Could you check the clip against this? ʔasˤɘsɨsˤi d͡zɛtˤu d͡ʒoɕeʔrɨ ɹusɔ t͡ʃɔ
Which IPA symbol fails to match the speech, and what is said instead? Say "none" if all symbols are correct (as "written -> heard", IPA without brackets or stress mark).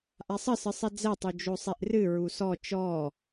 ɕ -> sˤ